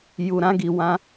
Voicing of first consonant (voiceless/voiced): voiced